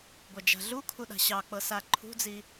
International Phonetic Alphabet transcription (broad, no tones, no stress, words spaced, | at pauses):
ɡʷad͡ʒa̤ɮukʰu ɗa̤ɕɑk͡pɤ saǃʰṳd͡zi